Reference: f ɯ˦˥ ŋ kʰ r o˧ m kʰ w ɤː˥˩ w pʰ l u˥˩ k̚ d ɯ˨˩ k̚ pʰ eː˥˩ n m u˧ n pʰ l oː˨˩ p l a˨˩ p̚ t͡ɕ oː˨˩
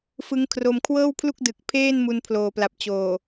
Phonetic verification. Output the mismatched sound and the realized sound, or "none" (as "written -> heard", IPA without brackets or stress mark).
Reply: none